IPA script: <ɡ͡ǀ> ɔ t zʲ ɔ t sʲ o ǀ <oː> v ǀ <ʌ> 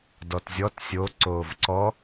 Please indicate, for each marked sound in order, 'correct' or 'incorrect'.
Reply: incorrect: d, correct, incorrect: ɔ

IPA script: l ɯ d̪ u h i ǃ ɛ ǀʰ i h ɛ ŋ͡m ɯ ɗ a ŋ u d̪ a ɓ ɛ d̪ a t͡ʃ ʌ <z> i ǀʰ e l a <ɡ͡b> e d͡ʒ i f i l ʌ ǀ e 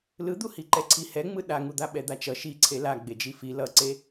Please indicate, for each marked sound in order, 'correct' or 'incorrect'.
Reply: incorrect: ʃ, correct

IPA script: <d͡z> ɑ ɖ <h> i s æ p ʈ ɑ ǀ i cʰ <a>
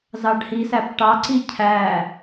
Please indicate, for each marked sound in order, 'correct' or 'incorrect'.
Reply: incorrect: z, correct, incorrect: æ

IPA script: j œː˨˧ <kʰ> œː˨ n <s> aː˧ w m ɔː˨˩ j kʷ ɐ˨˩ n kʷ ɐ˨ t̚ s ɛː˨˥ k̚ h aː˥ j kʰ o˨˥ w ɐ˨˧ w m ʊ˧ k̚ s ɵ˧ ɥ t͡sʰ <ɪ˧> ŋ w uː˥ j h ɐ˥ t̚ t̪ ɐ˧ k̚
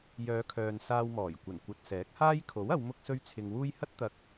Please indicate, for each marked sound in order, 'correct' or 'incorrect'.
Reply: correct, correct, correct

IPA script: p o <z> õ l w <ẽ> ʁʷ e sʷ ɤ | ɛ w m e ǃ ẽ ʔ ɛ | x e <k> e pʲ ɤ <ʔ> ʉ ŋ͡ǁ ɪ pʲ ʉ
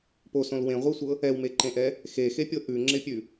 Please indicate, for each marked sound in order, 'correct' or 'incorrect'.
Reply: incorrect: s, correct, incorrect: x, correct

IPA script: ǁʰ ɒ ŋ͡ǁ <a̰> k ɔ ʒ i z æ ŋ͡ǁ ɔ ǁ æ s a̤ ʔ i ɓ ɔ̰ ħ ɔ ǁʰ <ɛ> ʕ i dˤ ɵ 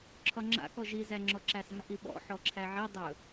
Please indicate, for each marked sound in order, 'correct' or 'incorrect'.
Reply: correct, incorrect: æ

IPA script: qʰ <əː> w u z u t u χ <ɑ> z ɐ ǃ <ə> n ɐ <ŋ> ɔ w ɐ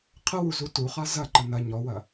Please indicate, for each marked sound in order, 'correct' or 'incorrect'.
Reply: incorrect: ə, incorrect: a, correct, incorrect: ɲ

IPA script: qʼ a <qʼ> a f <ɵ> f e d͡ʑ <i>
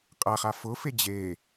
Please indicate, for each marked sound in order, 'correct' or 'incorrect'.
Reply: incorrect: χ, incorrect: ʊ, incorrect: e

